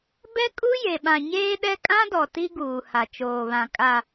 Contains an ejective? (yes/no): yes